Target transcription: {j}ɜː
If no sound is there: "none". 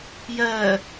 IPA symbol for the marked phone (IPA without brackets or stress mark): j